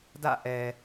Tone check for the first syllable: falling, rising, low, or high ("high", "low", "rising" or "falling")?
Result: falling